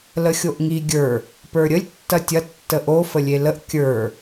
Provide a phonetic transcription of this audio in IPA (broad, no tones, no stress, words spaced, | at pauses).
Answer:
ləxʲoʔŋi ɡʲə˞ | pə˞ɾʲəlʲ tːɐtʲɐ tːəʔo fəlʲeləʔ kʲə˞